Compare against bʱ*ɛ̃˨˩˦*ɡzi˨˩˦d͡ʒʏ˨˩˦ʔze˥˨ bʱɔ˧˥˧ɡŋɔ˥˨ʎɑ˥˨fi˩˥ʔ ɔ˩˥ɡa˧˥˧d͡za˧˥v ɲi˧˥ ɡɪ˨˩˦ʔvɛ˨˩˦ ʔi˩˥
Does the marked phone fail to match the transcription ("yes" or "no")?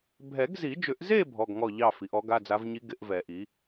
yes